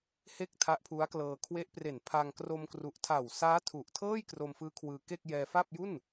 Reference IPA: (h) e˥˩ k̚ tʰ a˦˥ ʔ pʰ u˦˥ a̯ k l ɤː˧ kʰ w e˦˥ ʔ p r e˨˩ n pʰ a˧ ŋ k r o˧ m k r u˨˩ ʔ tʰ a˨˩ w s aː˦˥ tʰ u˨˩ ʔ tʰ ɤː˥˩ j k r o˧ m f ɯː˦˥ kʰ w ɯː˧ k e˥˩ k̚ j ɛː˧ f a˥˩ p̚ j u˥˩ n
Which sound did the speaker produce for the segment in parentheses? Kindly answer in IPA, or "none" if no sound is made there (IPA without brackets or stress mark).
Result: h